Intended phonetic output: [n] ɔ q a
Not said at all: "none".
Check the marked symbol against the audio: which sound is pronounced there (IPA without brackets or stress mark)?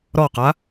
ɾ